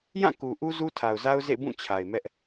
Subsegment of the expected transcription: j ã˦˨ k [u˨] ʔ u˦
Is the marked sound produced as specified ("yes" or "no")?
yes